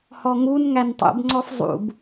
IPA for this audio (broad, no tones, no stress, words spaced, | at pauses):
hɔŋun ŋæntˤṵb ŋ͡ǀɔfzˤṵb